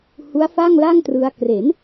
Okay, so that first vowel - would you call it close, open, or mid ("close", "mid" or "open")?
close